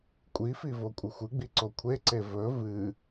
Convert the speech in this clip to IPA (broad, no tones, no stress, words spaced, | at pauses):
kʷʼifi vokʷʼɨxʷɨɡ͡bi ǀokʷʰeǀe vɵ vɨ